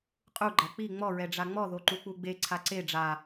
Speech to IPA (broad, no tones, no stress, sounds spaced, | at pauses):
qʼ u ɡ͡ǃ a k͡p i ŋ͡m ɔ ɹ ɛ ɖ͡ʐ a ŋ͡m ɔ ð o ǃ u k͡p u ɡ͡b e ǀʰ a ǀ e ɖ͡ʐ a